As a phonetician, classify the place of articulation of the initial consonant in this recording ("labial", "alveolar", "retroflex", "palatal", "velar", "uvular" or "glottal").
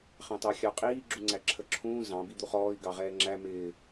uvular